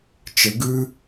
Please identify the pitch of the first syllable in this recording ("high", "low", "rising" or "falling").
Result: rising